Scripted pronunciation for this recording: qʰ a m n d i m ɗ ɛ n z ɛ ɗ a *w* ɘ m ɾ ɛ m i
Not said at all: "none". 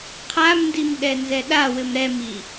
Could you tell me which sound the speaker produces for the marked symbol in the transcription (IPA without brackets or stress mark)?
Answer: w